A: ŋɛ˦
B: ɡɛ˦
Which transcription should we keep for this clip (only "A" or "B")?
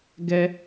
B